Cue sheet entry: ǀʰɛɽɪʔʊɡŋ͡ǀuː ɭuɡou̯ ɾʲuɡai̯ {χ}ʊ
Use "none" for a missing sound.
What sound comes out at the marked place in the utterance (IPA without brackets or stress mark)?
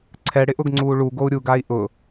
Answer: ʔ